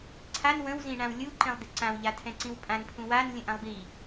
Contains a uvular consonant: no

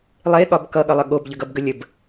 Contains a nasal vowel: no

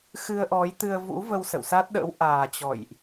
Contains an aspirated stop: no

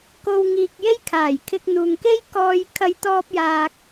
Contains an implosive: no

